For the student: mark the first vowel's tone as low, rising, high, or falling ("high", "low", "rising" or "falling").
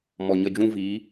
low